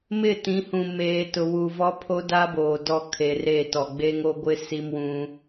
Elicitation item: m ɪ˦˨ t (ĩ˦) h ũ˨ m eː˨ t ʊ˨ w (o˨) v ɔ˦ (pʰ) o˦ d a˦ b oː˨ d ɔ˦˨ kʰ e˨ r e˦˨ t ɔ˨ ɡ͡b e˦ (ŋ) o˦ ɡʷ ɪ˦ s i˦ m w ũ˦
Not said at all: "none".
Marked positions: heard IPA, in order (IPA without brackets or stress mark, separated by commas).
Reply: ĩ˨˦, u˨, pʰ, ŋ